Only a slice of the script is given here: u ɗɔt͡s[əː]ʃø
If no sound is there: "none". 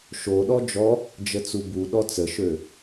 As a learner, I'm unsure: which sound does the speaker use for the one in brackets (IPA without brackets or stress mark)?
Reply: ə